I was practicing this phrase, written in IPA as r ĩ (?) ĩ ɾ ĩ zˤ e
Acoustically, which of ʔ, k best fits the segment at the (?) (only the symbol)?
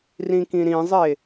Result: k